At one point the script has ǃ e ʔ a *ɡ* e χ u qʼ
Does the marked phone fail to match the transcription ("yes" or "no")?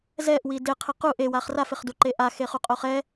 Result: yes